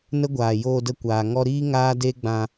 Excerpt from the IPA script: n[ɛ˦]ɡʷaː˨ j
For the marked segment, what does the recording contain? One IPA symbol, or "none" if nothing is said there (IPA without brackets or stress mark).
ə˦